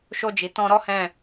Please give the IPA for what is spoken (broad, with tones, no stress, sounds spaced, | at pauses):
ʃ o˧ d͡ʒ i˨ t ɔ̃˧ ɾ ɔ˦ h ɛ̃˦˨